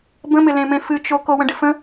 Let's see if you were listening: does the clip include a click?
no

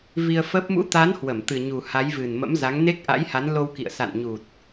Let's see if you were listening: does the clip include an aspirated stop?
no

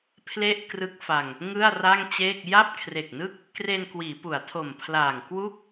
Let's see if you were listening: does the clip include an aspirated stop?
yes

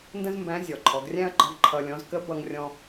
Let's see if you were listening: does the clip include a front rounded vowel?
no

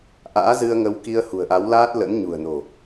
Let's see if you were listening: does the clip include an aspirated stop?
no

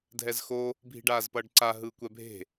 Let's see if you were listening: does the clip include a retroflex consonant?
yes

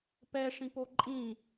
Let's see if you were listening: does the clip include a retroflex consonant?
yes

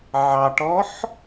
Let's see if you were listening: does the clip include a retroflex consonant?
yes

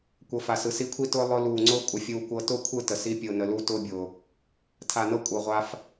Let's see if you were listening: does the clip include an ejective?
yes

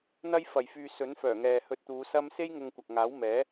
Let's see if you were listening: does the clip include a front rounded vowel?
yes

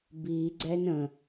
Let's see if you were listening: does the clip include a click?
yes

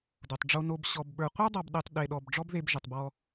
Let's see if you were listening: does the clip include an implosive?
yes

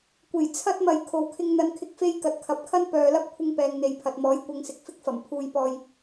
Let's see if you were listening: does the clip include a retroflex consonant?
no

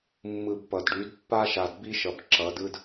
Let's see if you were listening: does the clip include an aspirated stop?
no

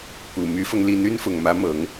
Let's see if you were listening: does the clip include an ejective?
no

